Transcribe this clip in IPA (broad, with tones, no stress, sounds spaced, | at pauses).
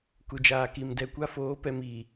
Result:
k u˨ d͡ʒ aː˨ k i˨ m d ɛ˨ kʷ a˦ f oː˨˦ p ɛ˨ m iː˨